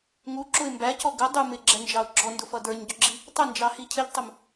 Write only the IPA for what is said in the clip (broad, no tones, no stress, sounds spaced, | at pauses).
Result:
ŋ u ǁ ʊ ɪ̯ m b æ c ɔ ɡ ə dˤ u m ɪ ɡ͡ǁ ɛ n d͡ʒ ɑ ʊ̯ ɡ͡ǁ ɔ n d ʊ f ʌ d ə˞ ɲ ɟ ʊ ɡ͡ǁ i | tˤ ə n d͡ʒ ɑ h i cʰ ɪ ʎ tˤ ʊ m